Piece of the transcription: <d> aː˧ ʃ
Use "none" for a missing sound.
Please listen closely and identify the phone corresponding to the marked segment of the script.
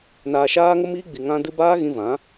n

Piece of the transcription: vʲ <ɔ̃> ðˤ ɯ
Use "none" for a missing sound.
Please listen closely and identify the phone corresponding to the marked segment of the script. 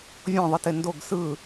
ɔ̃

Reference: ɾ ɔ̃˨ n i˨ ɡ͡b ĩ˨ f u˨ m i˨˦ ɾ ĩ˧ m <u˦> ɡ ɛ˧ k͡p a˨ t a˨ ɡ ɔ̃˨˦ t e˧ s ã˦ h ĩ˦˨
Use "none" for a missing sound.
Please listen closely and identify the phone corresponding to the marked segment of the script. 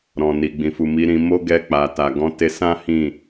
o˦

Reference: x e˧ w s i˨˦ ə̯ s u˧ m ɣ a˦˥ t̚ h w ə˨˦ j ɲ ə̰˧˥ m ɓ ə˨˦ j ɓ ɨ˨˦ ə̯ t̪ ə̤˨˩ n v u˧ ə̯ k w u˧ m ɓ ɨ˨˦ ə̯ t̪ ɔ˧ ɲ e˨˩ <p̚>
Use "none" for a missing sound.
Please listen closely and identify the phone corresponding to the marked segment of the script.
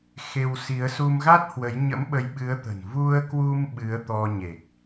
k̚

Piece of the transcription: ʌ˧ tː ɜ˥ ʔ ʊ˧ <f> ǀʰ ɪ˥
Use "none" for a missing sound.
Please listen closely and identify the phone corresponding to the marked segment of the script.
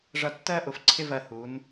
f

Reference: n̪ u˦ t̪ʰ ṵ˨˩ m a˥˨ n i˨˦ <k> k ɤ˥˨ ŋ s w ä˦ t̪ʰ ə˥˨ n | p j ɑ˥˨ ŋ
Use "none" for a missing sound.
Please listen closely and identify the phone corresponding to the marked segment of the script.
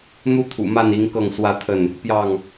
ŋ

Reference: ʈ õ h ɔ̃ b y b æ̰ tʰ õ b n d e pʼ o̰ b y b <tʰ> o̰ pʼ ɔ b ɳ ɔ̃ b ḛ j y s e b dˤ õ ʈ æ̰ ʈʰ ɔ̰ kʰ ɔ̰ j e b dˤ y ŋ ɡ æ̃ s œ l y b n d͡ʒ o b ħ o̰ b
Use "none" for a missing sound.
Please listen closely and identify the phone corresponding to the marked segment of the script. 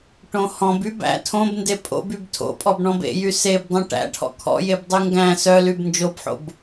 tʰ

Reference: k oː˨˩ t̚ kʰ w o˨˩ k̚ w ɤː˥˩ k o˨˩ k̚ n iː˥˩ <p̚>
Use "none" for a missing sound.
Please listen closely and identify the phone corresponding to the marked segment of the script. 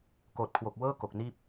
p̚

